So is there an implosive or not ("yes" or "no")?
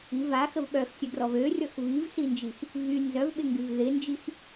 yes